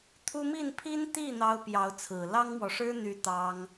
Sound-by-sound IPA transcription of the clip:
t̪ʰ u˥ m i˥˩ n pʰ i˥ n t̪ i˥˩ n̪ ɑ˥ ʊ̯ p j ɑ˧˥ ʊ̯ t͡sʰ ɹ̩˨˩ l ɑ˥ ŋ m w ɔ˨ ʂ ɻ̩˥ n̪ y˧˥ t̪ ɑ˥ ŋ

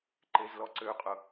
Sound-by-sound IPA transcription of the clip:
ǃ e z l ɔ ǀ ø qʼ ʊ

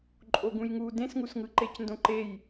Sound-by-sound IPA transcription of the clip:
ǃʼ o ɡ ũ j ŋ u d ẽ s ŋ u s ŋ ɯ ǃ e c n d õ ǃ e j

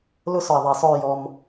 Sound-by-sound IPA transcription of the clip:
l ʊ˦ s ɔ˨ i̯ ðˤ ɛ˨ sˤ ʊ˦˨ y̯ j ɔ˦ m

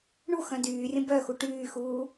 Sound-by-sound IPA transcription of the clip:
ɳ u x œ̃ d yː rʲ ə̃ b œ x u ʈ yː x uː

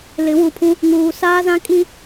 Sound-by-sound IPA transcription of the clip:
l ɪ˨˦ w u˨ pʰ ũ˦ | ŋ uː˨ s aː˦ z ã˦ kʼ i˦

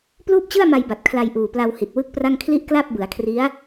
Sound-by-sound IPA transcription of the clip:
p l uː˥˩ p̚ t͡ɕ ɯ˥˩ a̯ m a˧ j b a˨˩ t̚ kʰ l a˧ j ʔ uː˨˩ p l a˧ w h i˨˩ t̚ w ɯ˥˩ k̚ p r a˥˩ ŋ kʰ l i˥˩ ʔ k l a˥˩ p̚ b ɯ˩˦ a̯ kʰ r i˦˥ a̯

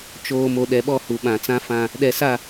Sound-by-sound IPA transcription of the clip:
t͡ʃ oː˨ m o˨ ɗ ɛ˨ ɓ ɔ˦˨ h u˨ ɓ ã˨ t͡s ã˦ f ã˦ | ɗ ɛ˨ s a˦˨

